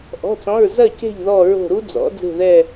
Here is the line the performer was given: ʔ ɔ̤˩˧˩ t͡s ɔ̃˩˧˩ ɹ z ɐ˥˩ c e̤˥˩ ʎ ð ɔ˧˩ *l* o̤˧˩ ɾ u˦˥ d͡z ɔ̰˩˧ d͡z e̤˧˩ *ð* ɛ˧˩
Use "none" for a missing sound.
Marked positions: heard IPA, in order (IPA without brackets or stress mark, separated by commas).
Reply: ɹ, ð